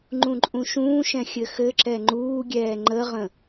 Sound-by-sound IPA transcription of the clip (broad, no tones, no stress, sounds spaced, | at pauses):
ŋ͡ǃ ũ ǃʼ ũ ʃ ũː ʃ ɛ̃ xʲ ɘ x ɘ ǁ ɛ ŋ͡ǃ uː ɡʲ ɛː ŋ͡ǃ ə ʁ ə̃